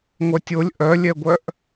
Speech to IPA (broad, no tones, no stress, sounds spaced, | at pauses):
ŋʷ œ tʲ o lʲ ʔ œ lʲ ɛ ɡʷ œ ʔ